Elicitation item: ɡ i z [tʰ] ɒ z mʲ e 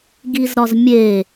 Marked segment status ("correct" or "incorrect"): incorrect